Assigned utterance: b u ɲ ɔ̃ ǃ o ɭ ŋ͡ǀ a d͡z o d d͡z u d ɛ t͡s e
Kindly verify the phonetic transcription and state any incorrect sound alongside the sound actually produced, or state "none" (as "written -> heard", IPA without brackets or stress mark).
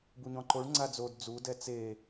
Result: none